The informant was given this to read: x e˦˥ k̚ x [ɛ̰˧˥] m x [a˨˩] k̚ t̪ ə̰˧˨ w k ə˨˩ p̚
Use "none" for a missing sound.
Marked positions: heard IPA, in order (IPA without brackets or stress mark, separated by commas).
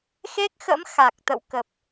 ə̰˧˥, a˨˩